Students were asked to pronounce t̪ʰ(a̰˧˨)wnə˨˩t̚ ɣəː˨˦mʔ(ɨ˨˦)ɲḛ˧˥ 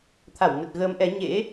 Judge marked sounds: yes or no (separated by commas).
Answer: no, no